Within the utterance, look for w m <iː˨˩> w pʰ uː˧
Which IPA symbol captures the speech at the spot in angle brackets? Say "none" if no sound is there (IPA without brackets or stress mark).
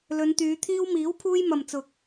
iː˨˥